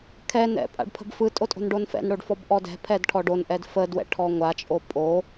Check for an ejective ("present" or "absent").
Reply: present